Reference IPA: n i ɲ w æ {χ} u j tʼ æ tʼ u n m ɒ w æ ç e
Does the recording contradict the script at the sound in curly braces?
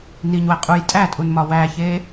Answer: yes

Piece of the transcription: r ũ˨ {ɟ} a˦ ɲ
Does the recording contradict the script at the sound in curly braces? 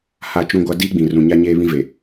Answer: yes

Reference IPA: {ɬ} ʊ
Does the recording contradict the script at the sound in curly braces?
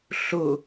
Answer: no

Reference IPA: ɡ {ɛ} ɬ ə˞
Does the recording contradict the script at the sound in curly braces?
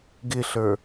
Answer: yes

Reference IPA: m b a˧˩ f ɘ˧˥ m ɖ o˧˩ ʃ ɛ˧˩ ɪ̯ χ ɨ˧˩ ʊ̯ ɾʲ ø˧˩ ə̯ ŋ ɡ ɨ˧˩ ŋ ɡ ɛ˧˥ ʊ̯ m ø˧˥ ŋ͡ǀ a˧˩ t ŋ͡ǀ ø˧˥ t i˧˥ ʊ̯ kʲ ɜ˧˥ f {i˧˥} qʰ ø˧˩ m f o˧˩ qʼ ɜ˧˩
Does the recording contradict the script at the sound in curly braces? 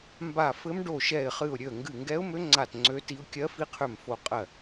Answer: no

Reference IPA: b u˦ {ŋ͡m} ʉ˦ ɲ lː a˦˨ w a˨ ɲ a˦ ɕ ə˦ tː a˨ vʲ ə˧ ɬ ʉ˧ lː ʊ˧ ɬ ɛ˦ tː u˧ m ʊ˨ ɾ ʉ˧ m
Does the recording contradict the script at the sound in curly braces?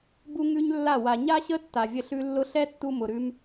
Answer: yes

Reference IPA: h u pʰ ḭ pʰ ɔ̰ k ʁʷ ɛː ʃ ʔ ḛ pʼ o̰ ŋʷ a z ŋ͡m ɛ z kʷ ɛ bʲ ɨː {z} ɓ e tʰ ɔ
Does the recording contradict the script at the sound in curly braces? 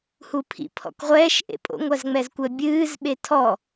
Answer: no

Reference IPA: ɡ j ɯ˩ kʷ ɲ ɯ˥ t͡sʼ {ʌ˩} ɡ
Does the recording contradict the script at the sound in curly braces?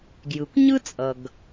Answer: no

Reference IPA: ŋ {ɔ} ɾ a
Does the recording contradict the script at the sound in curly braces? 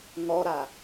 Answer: no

